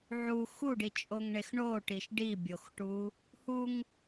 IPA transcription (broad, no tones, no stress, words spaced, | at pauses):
ʕu xuɖit͡ʃʼoŋɳex ɳoʈiʃ ɖibʲoxʈu | huŋ